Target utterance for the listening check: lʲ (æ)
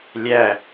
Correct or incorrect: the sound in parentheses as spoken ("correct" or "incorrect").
correct